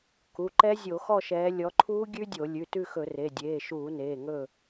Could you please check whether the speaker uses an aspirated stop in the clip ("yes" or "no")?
yes